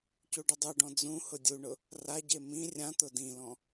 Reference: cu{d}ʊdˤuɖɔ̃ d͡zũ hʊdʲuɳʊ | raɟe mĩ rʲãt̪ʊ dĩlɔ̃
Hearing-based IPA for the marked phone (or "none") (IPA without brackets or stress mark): ɖ